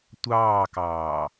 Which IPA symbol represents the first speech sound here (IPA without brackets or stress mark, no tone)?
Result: tʷ